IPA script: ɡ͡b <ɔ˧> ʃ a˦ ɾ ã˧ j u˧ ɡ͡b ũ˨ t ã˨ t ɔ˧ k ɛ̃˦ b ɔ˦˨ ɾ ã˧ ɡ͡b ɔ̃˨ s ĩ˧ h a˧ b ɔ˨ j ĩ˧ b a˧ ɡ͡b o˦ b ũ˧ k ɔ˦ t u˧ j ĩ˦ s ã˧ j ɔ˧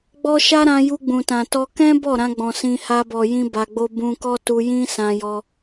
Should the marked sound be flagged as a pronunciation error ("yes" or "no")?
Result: yes